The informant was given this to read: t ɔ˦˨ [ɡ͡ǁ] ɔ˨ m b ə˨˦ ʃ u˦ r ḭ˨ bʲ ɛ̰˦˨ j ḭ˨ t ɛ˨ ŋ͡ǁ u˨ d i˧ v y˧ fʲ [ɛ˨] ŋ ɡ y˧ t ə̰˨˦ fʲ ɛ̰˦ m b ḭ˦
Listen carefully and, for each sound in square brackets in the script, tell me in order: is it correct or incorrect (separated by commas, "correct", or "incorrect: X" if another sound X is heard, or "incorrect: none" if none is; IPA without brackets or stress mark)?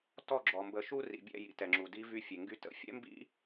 correct, incorrect: e˨